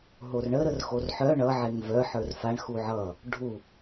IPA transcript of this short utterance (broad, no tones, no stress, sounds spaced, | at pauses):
ɦ o r ɳ ə ɾ ə r x o r ħ œ ɳ ʌ ʕ e ŋ v œ ħ ə˞ r f a ɳ x u ʕ ʌ | ɖʱ u